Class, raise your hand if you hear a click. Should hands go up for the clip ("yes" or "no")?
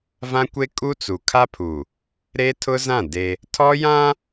no